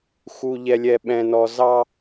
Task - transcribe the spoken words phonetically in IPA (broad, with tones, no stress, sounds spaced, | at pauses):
x u˨ ʎ ɛ˨ lʲ ɛ˨ ɓ ɛ̃˨ n ɔ˨ z ɑ˦